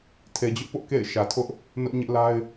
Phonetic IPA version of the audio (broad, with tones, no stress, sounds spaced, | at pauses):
tʰ e˨ d͡ʑ ʊ˦ ʔ p ʊ˦ ʔ k ḛ˦˨ ɪ̯ ʃ ä˨ tʰ ʊ˦ ʔ | n ʊ˦ ʔ ɲ ɪ˦ ʔ l a˦ ɪ̯